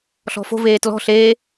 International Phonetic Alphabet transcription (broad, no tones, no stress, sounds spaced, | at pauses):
ɬ ɔ̤ f o̤ v eː t l ɔ̤ ɬ eː